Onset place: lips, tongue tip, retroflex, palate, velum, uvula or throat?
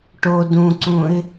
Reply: retroflex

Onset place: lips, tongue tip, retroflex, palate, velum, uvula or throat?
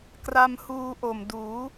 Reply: velum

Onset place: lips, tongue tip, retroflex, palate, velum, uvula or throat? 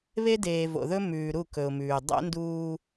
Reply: lips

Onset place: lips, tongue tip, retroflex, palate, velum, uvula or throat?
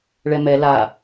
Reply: retroflex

